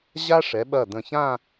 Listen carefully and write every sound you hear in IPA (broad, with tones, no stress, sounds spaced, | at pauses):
ʑ a˥ ʂ ɛ˩˧ ɓ ɐ˧˩ d ə̃˧˩ ç ã˥˧